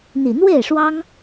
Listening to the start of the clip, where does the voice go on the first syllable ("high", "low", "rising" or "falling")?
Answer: low